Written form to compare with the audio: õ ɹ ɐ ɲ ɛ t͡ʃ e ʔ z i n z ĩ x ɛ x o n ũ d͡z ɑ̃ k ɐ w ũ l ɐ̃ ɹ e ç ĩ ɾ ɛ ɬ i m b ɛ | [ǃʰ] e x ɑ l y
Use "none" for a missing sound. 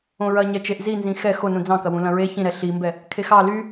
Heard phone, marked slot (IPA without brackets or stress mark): kʰ